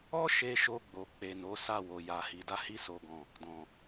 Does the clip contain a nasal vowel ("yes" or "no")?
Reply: yes